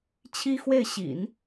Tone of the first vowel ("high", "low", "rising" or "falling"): high